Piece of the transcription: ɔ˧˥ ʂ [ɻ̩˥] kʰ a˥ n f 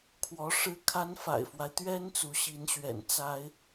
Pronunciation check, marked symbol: correct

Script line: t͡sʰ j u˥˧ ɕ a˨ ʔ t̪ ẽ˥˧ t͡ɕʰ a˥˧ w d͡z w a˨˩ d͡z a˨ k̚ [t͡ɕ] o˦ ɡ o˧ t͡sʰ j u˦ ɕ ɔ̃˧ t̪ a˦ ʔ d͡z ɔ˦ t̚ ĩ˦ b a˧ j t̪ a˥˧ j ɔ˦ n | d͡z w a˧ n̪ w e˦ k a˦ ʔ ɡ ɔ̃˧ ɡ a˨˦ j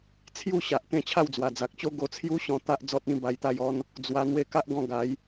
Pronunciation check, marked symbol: correct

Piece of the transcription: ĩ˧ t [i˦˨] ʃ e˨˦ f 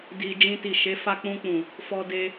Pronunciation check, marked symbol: incorrect: i˨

